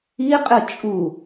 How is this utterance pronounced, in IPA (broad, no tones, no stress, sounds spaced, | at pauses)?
i qʼ ɨ t͡ʃʼ u